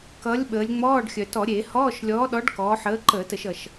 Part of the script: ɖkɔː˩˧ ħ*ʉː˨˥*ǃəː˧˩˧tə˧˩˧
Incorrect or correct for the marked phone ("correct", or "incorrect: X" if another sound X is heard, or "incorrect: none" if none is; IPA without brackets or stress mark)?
incorrect: əː˨˥